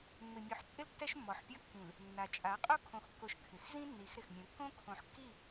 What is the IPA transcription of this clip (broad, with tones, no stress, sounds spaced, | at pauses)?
mː ɪ˨ mʲ u˨ ħ t͡sʼ ɪ˦ l tː ɛ˦ ʃ mː ɔ˨ ħ pʲ ɔ˦ kː ĩ˨ l | nː a˨ t͡ʃʼ a˨˦ qʼ o˦ kʰ õ˨ x kː o˨ ʃ kʰ ɪ˨ x z ĩ˦ nː i˨˦ x ɾ ɪ˨ x mʲ õ˨˦ kː õ˦ kʰ õ˨ ħ kː i˦˨